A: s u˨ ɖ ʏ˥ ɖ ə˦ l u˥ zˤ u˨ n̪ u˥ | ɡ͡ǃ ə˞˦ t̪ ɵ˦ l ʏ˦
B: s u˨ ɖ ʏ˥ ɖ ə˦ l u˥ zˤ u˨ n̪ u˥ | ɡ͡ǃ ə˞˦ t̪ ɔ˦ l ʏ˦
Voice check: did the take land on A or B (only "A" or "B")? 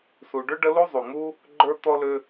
B